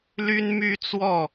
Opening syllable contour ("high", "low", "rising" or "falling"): high